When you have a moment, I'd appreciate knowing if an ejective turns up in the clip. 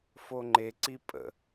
yes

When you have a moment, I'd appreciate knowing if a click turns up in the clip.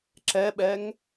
yes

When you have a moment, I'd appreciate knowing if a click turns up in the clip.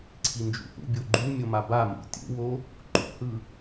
yes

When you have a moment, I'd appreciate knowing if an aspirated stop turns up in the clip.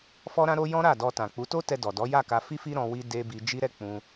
no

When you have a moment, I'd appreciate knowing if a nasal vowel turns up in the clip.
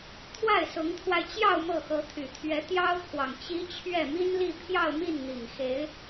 no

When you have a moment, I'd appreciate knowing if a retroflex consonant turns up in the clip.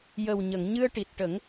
yes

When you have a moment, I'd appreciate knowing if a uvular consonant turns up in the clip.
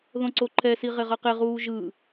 yes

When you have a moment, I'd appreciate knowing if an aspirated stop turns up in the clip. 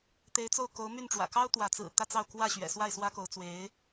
no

